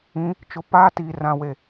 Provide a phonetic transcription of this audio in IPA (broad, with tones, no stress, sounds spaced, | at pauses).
ĩ˨˦ | t͡ʃ ʊ˨ p aː˦ t iː˨ r ã˨ w e˨